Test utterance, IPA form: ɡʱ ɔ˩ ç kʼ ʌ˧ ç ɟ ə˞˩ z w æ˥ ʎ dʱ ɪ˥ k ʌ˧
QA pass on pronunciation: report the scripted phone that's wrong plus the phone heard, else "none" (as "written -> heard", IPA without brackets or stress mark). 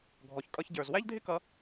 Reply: none